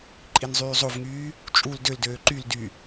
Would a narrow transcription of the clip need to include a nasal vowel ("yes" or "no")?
no